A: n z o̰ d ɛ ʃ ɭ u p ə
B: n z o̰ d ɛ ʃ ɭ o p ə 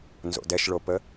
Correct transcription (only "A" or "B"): B